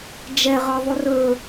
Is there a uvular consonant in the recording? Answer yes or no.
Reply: yes